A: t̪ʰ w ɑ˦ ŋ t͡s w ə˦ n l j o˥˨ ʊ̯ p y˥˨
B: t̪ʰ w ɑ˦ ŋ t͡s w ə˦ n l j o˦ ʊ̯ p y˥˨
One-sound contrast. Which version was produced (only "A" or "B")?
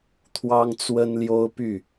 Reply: B